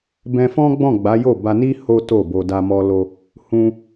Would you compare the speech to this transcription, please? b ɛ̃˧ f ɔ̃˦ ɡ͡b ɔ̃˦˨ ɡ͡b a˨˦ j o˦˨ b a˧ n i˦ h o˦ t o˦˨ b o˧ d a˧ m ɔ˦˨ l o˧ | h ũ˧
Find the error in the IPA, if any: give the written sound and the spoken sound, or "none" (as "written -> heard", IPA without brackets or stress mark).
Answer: ɔ˦˨ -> ɔ˧